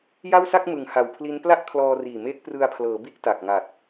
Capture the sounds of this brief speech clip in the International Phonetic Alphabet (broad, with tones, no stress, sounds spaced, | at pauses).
j a˥˩ w s a˥˩ k̚ m ɯ˩˦ ŋ h a˨˩ w pʰ l i˦˥ n p l a˥˩ ʔ kʰ l ɔː˧ r iː˨˩ m eː˦˥ k̚ p r ɯ˧ a̯ pʰ l ɤː˩˦ b i˥˩ ʔ t a˨˩ k̚ ŋ a˨˩ t̚